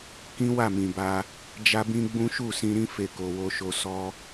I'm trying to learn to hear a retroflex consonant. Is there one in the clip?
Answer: no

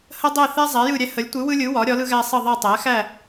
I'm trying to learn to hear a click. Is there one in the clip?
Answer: no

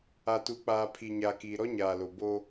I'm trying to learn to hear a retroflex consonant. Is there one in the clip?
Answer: no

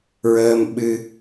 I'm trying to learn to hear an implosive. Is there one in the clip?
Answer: yes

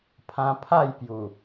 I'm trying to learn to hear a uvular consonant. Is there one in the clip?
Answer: no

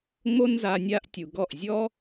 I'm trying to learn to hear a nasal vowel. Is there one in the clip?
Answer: no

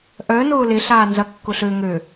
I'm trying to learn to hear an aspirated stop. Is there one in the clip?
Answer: no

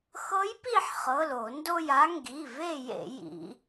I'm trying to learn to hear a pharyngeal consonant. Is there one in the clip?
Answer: yes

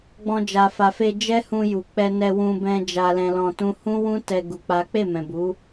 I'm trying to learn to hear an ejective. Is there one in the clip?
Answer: no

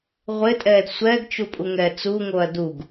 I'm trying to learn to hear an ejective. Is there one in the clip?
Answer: yes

